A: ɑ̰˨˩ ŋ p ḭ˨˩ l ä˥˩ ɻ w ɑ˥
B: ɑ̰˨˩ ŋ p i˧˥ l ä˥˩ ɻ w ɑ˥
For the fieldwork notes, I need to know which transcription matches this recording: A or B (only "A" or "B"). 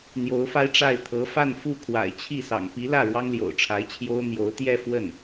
B